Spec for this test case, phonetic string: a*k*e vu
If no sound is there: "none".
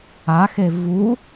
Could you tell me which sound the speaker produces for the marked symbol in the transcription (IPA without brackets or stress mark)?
x